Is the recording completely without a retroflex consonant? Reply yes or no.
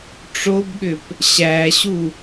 no